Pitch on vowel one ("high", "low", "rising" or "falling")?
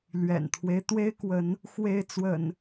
low